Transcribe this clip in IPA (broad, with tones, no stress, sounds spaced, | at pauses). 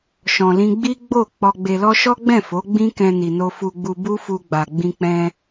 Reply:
ʃ ɔ̃˨ l ĩ˧ ɡ͡b i˦ ɡ͡b o˦˨ k͡p ɔ˧ ɡ͡b e˧ l ɔ˦ ʃ ɔ˦ ɡ͡b ɛ̃˦˨ f o˨˦ ɡ͡b ĩ˦ k ɛ̃˧ n i˨ n o˧ f u˧ ɡ͡b u˧ b u˦ f u˧ ɡ͡b a˨ ɡ͡b ĩ˧ k͡p ɛ̃˧